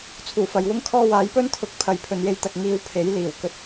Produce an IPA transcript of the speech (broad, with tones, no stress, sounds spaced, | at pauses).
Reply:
t͡sʰ uː˨˩ f ɐ˨ j w ʊ˥ ŋ kʰ ɔː˥ w aː˨˥ j p ɵ˥ n t̪ʰ ʊ˨˥ k̚ pʰ ɐ˨˥ j pʰ ɵ˨˧ n j e˧ j t̪ ɐ˧ k̚ ŋ iː˧ w pʰ e˨˥ j l iː˨˩ w k ɵ˨˥ t̚